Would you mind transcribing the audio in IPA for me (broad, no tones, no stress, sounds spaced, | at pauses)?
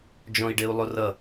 d͡ʒ ɔ̃ i̯ ɖ e u̯ lˠ o r ʌ